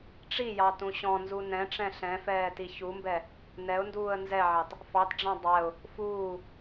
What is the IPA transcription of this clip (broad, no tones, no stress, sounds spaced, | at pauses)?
ʈ͡ʂ i j ɑ t ũ ɕ ɔ̃ n z u n ɛ̃ ʈ͡ʂ ɛ̃ ɬ ɛ̃ f ɛː t i ç u m b ɛ | n ɛ ʊ̯ n d uː ə̯ n z ɛ ʕ ɑ t | f ɑ t ɖ͡ʐ ɑ̃ dˤ ɛ ʊ̯ | f uː